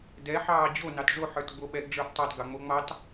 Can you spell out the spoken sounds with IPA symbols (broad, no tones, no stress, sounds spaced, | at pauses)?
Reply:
d ɛ ħ ɑː d͡ʑ o n ɑ t ʐ o ħ ə˞ t ɡ͡b o ɓ ɛ ɡ ɖ͡ʐ ə˞ ʔ tˤ ɑ t ɡ ɑ ŋ͡m o ŋ͡m ɑ t